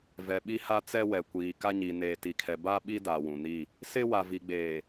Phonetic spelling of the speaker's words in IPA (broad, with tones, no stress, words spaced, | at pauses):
vɛ˨ɓi˦ha˦ t͡sɛ˦wɛ˨kʷiː˨ ka˦ɲiː˨ neː˨ti˨kʰɛ˨ ba˦ɓi˦ da˨wũ˨ni˦˨ | sɪ˦ wa˨vi˨ɡ͡beː˨